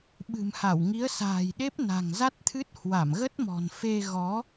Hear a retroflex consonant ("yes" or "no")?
no